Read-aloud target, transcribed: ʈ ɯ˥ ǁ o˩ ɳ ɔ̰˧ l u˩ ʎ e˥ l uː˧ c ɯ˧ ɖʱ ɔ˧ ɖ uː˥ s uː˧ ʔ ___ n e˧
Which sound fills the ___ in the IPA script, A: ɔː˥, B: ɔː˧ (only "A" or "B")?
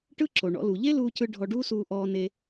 B